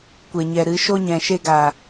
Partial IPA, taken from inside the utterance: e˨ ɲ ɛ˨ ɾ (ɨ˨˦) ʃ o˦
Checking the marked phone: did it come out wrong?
no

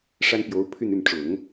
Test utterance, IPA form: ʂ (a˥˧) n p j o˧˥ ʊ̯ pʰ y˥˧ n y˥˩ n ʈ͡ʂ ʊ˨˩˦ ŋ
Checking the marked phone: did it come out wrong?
yes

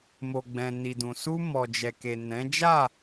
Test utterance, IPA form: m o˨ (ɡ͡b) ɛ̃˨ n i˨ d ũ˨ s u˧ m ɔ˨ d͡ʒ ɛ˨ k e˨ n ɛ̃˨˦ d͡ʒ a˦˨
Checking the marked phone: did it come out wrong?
no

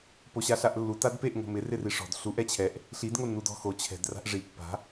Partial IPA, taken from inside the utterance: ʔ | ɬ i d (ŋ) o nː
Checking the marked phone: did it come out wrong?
no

